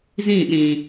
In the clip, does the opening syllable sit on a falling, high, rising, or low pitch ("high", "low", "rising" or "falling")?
falling